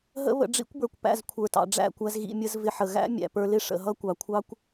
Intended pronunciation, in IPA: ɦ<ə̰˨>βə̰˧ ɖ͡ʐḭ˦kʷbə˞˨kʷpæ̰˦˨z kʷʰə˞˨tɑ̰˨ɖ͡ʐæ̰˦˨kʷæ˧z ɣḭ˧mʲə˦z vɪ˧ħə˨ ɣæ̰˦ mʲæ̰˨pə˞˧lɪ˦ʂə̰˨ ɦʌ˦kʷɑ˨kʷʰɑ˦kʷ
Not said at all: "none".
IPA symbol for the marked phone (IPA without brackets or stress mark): ə̰˦